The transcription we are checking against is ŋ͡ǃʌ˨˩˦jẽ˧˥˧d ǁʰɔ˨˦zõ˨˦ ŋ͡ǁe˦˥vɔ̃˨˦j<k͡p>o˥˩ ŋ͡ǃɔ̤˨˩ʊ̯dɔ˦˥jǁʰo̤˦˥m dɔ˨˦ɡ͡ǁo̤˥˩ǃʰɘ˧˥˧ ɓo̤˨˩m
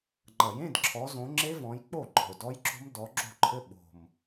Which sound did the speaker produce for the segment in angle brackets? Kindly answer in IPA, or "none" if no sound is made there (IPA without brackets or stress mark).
k͡p